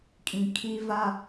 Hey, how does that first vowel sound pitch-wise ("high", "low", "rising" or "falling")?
low